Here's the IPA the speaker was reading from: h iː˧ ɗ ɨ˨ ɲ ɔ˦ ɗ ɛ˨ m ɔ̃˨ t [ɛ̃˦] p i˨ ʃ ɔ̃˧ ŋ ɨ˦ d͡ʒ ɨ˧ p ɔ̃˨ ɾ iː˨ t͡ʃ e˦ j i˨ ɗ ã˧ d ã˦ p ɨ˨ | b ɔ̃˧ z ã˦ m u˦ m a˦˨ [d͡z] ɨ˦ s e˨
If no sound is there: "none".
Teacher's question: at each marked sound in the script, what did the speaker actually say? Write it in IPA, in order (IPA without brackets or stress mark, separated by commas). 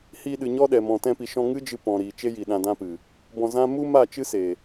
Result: ɛ̃˧, t͡ʃ